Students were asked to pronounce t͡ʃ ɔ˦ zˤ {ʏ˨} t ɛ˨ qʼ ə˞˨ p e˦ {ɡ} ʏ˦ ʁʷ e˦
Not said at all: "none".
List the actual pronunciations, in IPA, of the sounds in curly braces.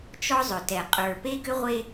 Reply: ʏ˨, ɡ

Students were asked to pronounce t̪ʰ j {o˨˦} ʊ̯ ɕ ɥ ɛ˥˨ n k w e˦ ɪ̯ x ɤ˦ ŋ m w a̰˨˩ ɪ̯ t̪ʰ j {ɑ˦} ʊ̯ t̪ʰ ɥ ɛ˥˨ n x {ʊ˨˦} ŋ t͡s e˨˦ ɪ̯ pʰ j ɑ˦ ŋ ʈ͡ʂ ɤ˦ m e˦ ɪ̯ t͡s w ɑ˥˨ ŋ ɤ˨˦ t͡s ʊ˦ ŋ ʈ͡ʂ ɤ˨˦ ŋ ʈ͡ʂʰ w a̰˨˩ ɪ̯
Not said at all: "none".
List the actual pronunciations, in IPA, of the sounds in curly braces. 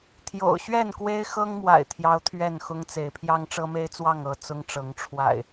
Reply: o̰˨˩, ɑ˦, ʊ˦

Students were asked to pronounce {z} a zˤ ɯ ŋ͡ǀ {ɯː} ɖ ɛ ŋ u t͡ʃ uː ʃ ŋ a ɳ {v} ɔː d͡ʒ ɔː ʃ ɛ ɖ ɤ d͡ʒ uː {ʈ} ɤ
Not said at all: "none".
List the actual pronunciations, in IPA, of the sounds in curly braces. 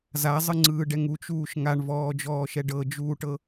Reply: z, ɯː, v, ʈ

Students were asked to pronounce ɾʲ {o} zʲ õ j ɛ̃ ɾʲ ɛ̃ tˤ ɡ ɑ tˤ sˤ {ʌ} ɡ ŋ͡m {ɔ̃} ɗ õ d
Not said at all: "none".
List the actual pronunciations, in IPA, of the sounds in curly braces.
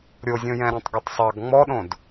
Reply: o, ɑ, ɔ

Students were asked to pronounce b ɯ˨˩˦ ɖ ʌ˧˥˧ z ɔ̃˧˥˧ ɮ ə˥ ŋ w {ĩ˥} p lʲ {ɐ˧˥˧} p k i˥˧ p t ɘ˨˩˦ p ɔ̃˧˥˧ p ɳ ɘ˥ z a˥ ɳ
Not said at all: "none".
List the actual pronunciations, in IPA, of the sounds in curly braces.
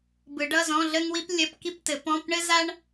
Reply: i˥, ɐ˧˥˧

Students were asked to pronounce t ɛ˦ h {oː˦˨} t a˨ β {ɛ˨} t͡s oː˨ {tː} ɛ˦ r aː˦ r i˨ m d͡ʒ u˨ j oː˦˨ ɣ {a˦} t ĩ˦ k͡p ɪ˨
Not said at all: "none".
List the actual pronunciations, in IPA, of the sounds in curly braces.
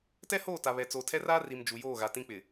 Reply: oː˦˨, ɛ˨, tʰ, a˨

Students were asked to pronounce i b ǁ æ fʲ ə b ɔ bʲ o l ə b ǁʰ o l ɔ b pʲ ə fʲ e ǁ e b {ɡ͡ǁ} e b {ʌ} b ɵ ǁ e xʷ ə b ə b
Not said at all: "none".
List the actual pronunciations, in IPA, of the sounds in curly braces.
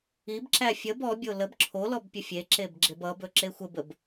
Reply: ɡ͡ǁ, ʌ

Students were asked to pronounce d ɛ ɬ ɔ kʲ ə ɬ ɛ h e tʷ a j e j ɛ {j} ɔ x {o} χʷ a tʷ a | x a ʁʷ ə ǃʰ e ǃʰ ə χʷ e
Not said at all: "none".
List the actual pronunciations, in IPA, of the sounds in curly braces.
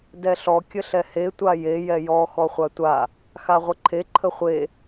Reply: j, ɔ

